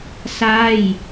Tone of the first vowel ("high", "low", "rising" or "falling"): falling